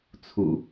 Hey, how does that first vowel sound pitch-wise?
low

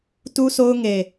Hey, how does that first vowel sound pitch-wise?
high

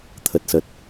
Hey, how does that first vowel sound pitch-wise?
low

